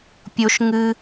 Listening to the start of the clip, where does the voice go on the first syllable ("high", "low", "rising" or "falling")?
high